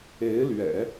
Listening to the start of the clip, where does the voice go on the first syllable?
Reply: rising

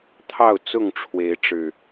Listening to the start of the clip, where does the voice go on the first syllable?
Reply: falling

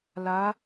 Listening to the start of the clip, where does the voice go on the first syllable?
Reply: rising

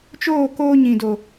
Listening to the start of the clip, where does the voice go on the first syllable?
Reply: falling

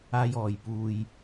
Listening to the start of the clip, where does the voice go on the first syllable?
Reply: high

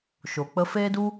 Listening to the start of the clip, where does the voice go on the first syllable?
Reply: low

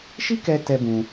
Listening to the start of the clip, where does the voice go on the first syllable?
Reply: high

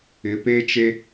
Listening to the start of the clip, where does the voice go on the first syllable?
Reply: rising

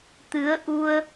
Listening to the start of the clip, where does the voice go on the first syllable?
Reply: rising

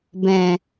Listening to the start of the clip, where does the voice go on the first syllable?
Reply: low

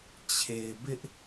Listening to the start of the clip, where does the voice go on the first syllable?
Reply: low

